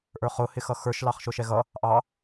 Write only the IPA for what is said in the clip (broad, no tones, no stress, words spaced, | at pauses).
ʔə˞χʊ hɪxʌxə˞ʃ lɑχʃʊʃɛɣʌ | ʔɑ